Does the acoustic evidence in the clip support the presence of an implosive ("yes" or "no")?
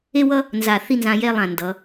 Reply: no